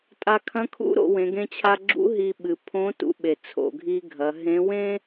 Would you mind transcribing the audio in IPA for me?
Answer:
tʼ a˧ kʰ ɐ̃˧˥ kʰ ṵ˧˥ ɾ o̰˩˧ w ẽ˩˧ ɡ ẽ˧ t͡ɕʰ a˧ ɡ͡ǁ ṵ˧˥ ɦ i˧ ɓ ɨ˩ pʰ õ˧˥ t ṵ˧ ɓ e˩ t͡sʰ o̰˩ ɡʱ i˧ ɡʱ ɐ˩˧ ɦ ẽ˧˥ w ẽ˥

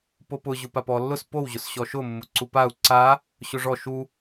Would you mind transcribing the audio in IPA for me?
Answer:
p o p ʊ ʑ ʊ p a p ɔ lː ʊ s p o w ʑ ʊ s ɕ ɔ ʃ ʊ mː ʊ ǀ u p a u̯ ǀ a | ɕ ʊ ʐ ɔ ʃ u

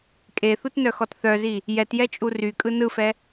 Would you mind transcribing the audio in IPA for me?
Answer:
kʼ e θ u t n œ x ɔ t θ œ z i | j ɛ t j ɛ t͡ʃʼ u r y kʼ ɯ n ɯ f ɛ

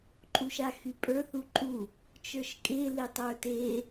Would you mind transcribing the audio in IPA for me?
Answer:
ǃʼ u ʃ a x y pʼ ə˞ θ u ǃʼ u | t͡ʃ ə˞ ʃ kʼ e l e tˤ ə˞ t e

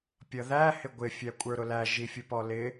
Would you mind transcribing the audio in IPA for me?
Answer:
pʲ ʌ ð æ h ɪ ɡʷ ɪ fʲ æ kʷʼ ə˞ ɾ ʊ l æ ʒ i fʲ ʊ p ɔ l ɪ

